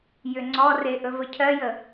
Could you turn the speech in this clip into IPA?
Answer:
j ʏ ŋ͡ǀ ɔ r e ʔ ɵ v ə cʰ ɜ j ə

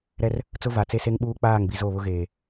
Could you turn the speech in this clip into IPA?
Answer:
ɾ ɛ˦ r | t͡s ʊ˦ v a˨ t͡s e˦ s e˦ ŋ ɓ uː˦ k͡p aː˦˨ ŋ b i˨ z o˦˨ β ʊ˦ ɣ eː˨

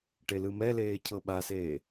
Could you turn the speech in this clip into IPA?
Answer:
ʈ e l ɯ m ɛ l eː cʰ ɤ ɓ a s eː

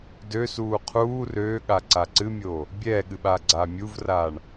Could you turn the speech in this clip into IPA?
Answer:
d ø s uː qʰ uː r øː ɠ a ǀ a ǀ ɨ mʲ oː | bʲ ɛː ɠ ɨ ɓ aː ɡ͡ǀ aː mʲ u v r aː ɳ

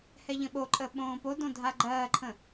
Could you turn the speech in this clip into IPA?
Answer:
h ɛ ʎ ə̃ ɓ o ǃʼ əː ɓ õː p o d õ dʱ a ɡ͡ǃ ɜː ǃʰ ə̃

